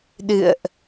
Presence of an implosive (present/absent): present